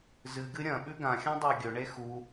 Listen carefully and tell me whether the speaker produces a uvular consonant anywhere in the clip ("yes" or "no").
no